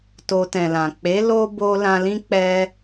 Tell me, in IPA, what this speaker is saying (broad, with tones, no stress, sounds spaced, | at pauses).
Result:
t o˧ t ɛ̃˨ l ã˨ k͡p e˨˦ l o˦ b o˧ l ã˧ l ĩ˦ k͡p ɛ˧